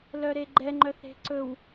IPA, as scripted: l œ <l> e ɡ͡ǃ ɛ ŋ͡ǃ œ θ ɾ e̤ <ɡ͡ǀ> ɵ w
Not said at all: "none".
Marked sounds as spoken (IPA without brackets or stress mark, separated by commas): ɾ, ǀ